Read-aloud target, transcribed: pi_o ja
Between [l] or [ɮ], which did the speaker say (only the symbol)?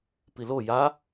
l